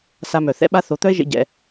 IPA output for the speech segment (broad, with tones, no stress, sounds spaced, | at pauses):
s a˧ m œ˩ θ ɛ̰˥ ɓ a˥ θ o˩˥ t̪ œ˥ e̯ ʒ ḛ˧ ɟ ɛ̰˩